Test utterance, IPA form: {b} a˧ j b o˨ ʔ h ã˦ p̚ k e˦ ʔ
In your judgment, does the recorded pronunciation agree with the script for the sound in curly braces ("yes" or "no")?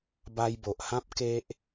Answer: yes